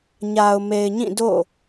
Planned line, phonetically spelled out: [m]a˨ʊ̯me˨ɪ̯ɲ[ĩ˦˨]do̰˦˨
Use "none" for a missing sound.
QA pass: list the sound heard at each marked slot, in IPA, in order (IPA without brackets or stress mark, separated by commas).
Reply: ɲ, ĩ˦˨